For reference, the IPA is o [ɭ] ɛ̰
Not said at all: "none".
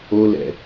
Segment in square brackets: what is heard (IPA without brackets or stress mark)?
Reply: l